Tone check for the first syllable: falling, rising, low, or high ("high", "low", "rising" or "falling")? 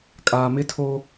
low